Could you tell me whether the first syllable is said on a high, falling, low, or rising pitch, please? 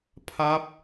falling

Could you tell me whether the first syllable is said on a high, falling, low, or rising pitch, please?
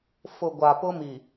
low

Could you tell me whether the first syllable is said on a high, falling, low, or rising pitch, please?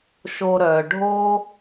low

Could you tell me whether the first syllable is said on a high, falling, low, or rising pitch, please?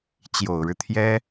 low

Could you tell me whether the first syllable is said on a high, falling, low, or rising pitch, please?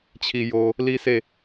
low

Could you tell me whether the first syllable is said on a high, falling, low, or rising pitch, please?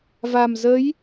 low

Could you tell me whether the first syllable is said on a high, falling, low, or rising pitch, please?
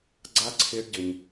high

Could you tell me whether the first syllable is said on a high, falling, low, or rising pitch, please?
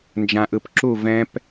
low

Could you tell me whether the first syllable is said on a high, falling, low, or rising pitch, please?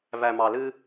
low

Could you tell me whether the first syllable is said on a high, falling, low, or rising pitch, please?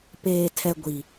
low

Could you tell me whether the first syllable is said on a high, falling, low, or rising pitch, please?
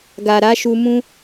low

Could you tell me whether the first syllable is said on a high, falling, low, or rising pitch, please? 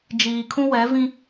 low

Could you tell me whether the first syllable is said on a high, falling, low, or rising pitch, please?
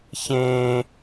high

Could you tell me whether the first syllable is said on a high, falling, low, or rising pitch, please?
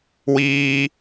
low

